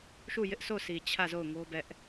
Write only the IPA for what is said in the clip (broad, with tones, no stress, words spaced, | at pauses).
ʃu˦˨jɪ˦ʔsʰo˦˨sʰi˨ t͡ɕʰä˦˨zo˦˨ʊ̯ŋo˦ bɛ˦ʔ